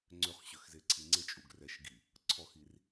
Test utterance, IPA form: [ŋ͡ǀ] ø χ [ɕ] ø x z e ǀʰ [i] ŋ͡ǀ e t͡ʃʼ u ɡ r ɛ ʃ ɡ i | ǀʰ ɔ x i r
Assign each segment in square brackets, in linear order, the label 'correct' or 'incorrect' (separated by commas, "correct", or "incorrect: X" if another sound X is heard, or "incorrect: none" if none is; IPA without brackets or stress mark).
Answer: correct, correct, correct